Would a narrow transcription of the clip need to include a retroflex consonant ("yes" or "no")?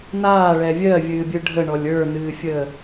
yes